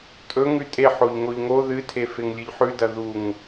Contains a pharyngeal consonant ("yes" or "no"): yes